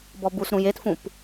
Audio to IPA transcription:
b ɔ b u s ɾ ũ j e t f ũ p

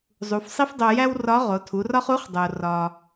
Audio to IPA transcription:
zˤ u˩˧ f sˤ i˥ f dˤ o˧ j æ˥ w r ɒ˧˥ ʁ o˩˧ tʰ u˩˧ r ɒ˥ χ u˧˥ χ dˤ o˩ r ɒ˩

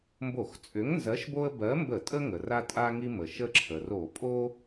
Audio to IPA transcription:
m b o˧˩˧ x t͡sʼ ʏ˨˥ ŋ n z ɜ˨˥ ʃ b o˦ ə̯ b ɜ˨˥ m b ə˧˩˧ tʼ ə˦ ŋ ə˩ r a˦ tʼ a˦ ŋ i˦ m ə˩ ʃ ə˦ ǁʰ ə˩ r o˧˩˧ pʼ o˦

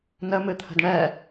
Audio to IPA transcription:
n ə m ɨ t̪ʰ ə̤ d ɳ ɛ

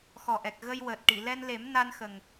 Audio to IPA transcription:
x ɔ˨˩ ʔ ɛ˨˩ k̚ ɣ ə˧ j w əː˨˩ t̚ ʈ i˨˩˨ l ɛ˧ n l e˨˩˦ m n a˧ n x ə˨˩ ŋ

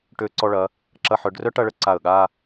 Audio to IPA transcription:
ʈ ø˧ ǀ ɔ˧ ɭ ɐ˩˧ | ǁ ɐ˧ ħ œ˩˧ ɖ r œ˥ ʈ ɐ˧ ɭ ə˧ ǀ a˧˩ ə̯ ɠ a˥˧

